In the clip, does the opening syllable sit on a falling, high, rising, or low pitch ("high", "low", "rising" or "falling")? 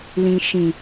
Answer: low